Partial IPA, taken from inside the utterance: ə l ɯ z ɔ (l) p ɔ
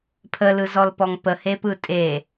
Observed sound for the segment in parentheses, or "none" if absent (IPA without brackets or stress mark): l